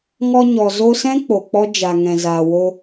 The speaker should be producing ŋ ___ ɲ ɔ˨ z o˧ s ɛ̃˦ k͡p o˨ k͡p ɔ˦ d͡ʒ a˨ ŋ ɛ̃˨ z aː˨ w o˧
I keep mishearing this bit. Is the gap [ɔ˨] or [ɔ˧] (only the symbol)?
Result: ɔ˧